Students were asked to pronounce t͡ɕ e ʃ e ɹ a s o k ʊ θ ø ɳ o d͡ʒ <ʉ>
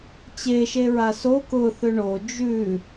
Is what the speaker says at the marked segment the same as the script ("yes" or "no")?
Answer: yes